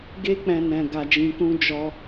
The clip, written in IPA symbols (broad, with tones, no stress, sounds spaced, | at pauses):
ɡ e˦ k͡p ɛ̃˧ n ɛ̃˧ ɡ a˧ d͡ʒ ĩ˧ k ũ˦ d͡ʒ ɔ˧